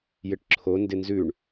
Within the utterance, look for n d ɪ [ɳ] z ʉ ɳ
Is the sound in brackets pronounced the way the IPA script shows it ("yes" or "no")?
no